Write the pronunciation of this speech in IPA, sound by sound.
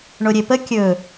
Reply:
ɳ o ɾʲ e p ə kʲ ɵ

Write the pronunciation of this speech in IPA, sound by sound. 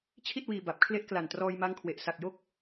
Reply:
t͡ɕʰ i˥˩ t̚ w iː˧ b a˨˩ p̚ kʰ l e˦˥ ʔ k l a˨˩ n t r ɔː˧ j m a˦˥ ŋ kʰ w e˨˩ ʔ s a˨˩ k̚ j o˦˥ k̚

